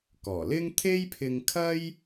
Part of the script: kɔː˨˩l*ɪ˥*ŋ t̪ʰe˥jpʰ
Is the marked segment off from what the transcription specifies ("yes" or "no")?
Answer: no